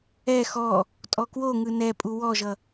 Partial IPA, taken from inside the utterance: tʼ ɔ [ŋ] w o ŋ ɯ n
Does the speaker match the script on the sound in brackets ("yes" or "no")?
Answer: no